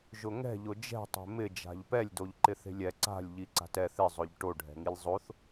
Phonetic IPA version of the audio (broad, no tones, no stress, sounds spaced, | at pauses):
ʒ ʊ ŋ ɛ̤ ʎ ʊ d͡ʒ ɛ̤ tˤ e̤ m ɪ d͡ʒ a̤ ʎ p ɛ lʲ d o ʎ ǃ ɪ θ e̤ lʲ ɛ ǀ a̤ lʲ ʎ i ǀ a̤ t ɛ θ ɪ zˤ ʊ ʎ ʈ o ɖʱ ɛ̤ ŋ i lʲ zˤ o θ